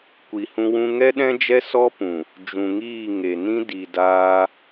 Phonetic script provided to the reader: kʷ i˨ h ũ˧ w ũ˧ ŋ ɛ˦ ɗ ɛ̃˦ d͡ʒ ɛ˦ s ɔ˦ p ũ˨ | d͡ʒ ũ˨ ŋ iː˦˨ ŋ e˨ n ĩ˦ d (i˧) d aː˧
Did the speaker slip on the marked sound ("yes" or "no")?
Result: yes